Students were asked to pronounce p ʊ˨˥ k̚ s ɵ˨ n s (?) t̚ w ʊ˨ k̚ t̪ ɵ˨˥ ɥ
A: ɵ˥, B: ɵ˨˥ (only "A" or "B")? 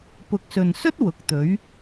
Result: A